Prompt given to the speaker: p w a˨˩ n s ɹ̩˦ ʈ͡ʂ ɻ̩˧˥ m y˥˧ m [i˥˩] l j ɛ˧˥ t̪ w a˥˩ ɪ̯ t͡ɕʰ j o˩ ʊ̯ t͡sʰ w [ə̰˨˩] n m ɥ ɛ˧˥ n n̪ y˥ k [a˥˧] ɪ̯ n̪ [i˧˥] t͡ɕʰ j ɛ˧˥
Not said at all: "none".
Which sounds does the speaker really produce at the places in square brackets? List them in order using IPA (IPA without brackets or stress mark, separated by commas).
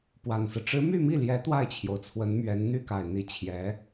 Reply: i˥˩, ə˧˥, a˨˩, i˧˥